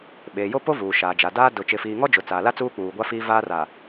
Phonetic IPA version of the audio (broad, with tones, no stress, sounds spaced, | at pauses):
ɓ eː˨ j o˦ p o˦ v uː˨ ʃ aː˨ d͡ʒ a˨ d aː˦ d ʊ˨ t͡ʃ ɪ˨ f iː˨ ŋ ɔ˦ d͡ʒ ʊ˨ t͡s aː˨ l a˦ t͡s uː˦ k͡p uː˨ ɡʷ a˦ f iː˦ v aː˦ r a˨